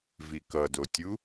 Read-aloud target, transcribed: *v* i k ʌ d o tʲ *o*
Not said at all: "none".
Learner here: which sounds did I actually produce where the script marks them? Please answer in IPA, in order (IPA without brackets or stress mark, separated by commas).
v, u